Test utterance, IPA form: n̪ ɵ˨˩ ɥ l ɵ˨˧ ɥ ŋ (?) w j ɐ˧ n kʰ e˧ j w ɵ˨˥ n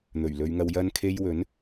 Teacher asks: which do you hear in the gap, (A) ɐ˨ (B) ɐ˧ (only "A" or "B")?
B